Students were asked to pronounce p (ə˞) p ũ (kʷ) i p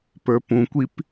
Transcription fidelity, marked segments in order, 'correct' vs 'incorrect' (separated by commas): correct, correct